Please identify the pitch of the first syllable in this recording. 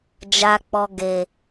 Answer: low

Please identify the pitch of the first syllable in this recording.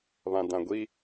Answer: low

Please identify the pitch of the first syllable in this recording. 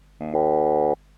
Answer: low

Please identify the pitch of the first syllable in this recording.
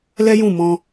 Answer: high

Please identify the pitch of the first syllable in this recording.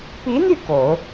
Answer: rising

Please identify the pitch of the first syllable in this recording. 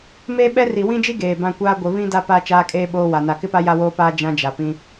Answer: high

